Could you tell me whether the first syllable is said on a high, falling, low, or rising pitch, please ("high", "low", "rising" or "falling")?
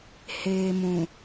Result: low